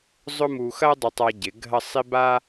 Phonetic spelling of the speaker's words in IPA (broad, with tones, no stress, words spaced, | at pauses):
zˤʊ˥mu˧ xɐ˥ dˤɪ˧tˤa˧ɟɪ˩˧ ɡʱɐ˥˧ sˤi˥ ba˥